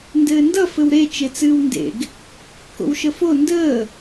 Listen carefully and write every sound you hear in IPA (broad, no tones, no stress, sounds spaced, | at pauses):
n d ɘː n d ʌ f ɘ w ɾ e t͡ʃ e t͡s ɨː w n d ḛ ɡ | k o̰ w ʃ ə f o n d əː